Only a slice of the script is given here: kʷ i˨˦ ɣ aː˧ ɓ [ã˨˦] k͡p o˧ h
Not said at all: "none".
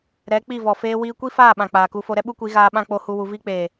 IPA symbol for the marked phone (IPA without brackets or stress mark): ã˦